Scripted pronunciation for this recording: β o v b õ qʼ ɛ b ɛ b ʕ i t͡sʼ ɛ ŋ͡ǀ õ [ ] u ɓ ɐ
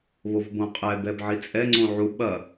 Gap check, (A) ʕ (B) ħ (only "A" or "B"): A